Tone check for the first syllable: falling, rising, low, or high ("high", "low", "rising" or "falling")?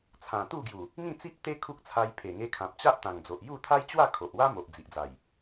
low